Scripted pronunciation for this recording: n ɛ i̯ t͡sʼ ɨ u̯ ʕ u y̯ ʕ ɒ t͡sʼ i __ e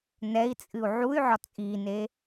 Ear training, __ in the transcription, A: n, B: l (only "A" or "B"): A